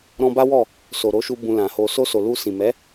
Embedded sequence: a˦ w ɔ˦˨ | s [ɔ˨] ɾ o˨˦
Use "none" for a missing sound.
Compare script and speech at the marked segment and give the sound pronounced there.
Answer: o˨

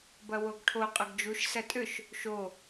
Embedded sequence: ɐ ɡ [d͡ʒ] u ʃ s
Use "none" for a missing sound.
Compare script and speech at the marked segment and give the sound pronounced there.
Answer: d͡ʒ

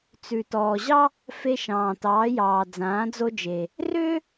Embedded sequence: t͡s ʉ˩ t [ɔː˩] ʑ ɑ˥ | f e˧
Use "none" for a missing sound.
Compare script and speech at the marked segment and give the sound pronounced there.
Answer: ɔː˩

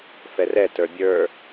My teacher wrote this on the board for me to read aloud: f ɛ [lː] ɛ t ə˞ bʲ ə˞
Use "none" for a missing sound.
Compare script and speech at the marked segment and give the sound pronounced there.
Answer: r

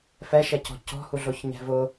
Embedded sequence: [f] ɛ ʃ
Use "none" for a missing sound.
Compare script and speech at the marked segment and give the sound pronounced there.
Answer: f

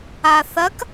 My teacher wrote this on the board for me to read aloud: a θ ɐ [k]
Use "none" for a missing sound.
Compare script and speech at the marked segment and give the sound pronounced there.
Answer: k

